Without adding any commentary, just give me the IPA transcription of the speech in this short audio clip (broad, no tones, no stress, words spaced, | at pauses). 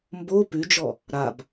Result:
mbo pʉd͡ʒɔ | ɾab